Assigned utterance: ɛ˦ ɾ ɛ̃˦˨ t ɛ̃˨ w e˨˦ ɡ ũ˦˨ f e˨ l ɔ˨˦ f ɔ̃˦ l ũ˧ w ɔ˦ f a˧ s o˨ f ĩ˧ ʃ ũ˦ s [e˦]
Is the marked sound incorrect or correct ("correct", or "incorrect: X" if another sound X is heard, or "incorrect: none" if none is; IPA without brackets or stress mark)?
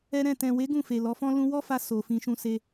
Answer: correct